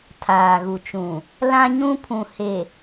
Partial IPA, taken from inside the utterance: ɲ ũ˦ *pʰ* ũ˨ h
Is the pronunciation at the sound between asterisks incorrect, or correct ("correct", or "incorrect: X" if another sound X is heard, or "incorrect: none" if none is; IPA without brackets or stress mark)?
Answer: correct